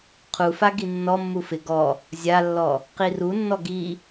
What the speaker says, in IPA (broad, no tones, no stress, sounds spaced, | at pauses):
qʰ u f a ɡ i nː ɔ mː u f ɪ ɡ ɔ | zʲ a lː ɔ | q i r u nː ɔ ɡ i